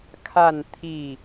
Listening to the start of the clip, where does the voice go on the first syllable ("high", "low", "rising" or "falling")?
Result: falling